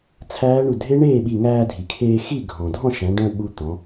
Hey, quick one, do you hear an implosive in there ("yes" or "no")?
yes